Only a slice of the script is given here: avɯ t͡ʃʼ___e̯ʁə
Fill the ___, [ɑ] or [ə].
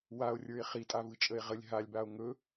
ə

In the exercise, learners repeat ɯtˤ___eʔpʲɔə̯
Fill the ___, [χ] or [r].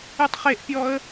χ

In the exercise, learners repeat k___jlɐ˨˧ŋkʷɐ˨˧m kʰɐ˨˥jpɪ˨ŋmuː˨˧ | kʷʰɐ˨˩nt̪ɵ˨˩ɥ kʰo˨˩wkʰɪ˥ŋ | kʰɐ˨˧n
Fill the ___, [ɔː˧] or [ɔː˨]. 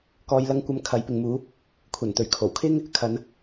ɔː˨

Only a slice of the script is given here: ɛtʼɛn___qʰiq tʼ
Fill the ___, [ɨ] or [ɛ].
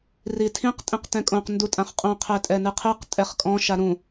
ɨ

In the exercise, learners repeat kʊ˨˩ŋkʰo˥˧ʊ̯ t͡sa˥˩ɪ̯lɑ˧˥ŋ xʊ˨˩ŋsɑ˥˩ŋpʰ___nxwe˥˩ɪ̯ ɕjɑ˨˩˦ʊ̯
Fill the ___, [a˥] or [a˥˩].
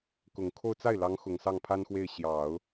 a˥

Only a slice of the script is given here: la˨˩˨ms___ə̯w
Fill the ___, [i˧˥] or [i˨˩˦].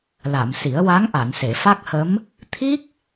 i˨˩˦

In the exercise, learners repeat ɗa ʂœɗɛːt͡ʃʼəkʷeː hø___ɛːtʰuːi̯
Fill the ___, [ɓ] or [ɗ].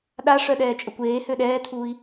ɗ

